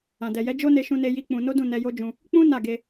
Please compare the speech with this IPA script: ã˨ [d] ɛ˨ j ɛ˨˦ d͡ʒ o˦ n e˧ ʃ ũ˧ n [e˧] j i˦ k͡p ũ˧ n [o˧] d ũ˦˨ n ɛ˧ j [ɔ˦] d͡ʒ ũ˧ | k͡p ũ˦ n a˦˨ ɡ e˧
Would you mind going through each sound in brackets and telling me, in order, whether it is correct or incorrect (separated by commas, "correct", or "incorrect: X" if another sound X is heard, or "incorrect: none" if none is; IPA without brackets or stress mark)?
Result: correct, correct, incorrect: o˦, incorrect: o˦